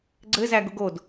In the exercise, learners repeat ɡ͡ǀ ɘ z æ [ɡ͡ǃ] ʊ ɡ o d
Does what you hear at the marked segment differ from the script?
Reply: yes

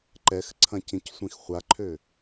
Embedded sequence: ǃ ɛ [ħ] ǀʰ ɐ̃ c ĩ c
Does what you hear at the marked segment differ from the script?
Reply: yes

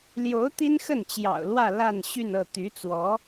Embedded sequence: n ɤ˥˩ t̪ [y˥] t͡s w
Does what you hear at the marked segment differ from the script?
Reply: yes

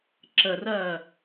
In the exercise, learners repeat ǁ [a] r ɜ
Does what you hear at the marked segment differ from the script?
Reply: yes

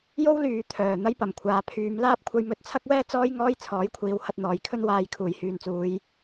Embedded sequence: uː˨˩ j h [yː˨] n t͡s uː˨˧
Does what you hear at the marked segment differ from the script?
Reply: no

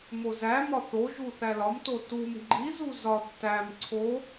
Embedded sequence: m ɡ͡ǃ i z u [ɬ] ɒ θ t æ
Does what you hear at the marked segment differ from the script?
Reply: yes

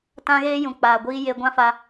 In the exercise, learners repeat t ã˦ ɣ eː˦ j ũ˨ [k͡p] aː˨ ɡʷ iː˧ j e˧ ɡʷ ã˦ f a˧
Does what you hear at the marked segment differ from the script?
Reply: no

